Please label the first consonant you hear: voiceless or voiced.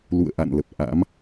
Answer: voiced